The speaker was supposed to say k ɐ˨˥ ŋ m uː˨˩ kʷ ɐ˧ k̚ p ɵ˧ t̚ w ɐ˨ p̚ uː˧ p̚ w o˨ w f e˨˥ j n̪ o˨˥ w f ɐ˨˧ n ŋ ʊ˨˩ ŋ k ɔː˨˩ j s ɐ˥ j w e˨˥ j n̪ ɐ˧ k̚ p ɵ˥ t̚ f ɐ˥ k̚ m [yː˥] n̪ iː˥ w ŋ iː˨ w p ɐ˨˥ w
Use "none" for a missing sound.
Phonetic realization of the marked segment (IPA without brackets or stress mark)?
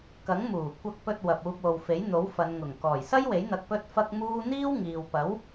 uː˥